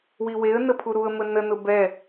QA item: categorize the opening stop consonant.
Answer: aspirated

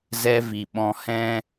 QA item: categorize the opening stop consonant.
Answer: implosive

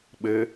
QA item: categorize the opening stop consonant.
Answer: implosive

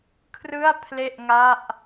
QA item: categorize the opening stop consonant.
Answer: aspirated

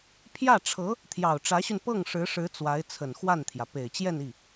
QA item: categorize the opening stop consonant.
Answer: aspirated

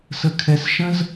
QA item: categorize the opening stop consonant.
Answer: aspirated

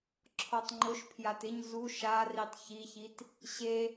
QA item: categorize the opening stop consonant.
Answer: click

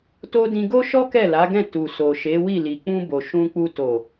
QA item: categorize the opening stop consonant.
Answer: plain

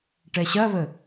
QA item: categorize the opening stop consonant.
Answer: plain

